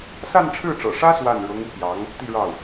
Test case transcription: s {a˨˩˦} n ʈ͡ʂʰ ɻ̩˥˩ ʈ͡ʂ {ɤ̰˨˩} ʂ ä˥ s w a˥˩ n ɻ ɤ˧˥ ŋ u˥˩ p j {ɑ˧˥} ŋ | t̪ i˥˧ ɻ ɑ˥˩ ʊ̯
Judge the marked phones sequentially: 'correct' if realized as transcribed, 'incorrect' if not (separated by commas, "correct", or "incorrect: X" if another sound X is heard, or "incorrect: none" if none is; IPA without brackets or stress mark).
incorrect: a˥˧, correct, correct